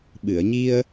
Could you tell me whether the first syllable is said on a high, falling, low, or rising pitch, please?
low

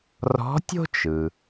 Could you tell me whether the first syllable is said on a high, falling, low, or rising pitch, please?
rising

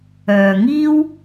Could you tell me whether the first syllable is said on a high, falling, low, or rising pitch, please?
low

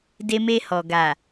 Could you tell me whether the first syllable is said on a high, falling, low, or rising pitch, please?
high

